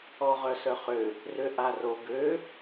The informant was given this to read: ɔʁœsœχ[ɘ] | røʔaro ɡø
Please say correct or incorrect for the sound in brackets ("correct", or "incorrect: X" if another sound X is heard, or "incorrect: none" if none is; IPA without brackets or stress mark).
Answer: incorrect: ø